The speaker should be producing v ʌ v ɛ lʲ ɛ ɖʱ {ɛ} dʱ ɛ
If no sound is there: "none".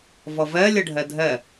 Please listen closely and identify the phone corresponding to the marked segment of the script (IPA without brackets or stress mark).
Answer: ɛ